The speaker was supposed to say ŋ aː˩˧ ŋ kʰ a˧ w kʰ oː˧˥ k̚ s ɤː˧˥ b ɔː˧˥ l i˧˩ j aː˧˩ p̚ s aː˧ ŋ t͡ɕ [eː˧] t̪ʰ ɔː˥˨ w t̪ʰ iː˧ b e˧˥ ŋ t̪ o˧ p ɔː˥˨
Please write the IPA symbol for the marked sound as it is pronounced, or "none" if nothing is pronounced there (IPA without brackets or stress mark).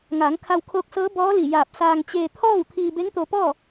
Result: eː˧